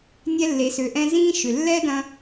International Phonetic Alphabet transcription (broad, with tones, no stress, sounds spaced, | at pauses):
nʲ ɛ˧ lː e˩ s ø˩ ʔ ɛ̃˧ z ĩː˧ ʃ ʏ˩ lː ɛ˥ d ɐ̃˧